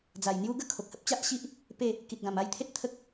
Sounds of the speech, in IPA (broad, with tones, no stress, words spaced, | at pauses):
d͡za˨˩j n̪ju˦ɡə˥˧ kʰo˨k̚hə˦p̚t͡ɕa˦ʔɕi˦ʔ | pe˥˧ | ki˨t̚ɡã˨˩ma˥˧jt̪ʰe˦t̚ t̪ʰə˦k̚